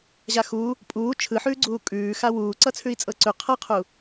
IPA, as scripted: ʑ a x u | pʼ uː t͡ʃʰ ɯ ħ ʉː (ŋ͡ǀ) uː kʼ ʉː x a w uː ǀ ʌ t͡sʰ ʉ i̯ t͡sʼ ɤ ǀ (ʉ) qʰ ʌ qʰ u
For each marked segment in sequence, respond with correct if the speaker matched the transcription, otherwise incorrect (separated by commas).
incorrect, correct